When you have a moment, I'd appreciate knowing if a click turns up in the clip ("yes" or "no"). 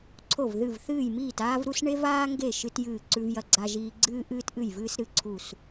yes